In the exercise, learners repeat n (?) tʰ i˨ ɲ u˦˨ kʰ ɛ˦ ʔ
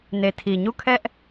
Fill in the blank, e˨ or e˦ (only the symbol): e˨